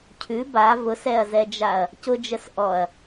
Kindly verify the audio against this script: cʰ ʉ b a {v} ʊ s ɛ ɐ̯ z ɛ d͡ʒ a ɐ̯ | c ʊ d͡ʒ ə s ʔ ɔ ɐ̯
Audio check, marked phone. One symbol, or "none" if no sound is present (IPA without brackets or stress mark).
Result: v